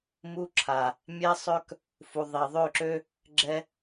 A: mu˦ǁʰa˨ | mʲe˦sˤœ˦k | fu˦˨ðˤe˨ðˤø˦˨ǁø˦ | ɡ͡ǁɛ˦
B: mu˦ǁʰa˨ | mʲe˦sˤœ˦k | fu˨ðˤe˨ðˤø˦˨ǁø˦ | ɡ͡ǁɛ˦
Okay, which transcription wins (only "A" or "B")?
B